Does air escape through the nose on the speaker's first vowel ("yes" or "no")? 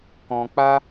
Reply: yes